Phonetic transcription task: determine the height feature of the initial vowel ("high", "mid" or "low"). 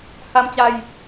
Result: low